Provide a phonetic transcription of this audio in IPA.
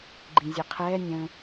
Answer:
ɡ͡ǃ ĩ zʲ ɛ qʰ ɛː nʲ ə̃

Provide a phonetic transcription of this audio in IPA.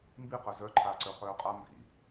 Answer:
m b i q œ z œ ǃʰ aː ǀ œ χ œː qʼ a m b ḭ

